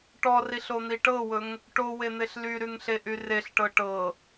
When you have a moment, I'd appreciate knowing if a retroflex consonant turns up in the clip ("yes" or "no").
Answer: yes